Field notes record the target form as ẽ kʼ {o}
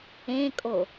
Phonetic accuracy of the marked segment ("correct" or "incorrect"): correct